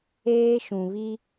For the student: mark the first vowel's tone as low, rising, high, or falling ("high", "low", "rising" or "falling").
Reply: high